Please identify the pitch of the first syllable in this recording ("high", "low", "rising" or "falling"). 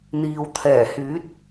low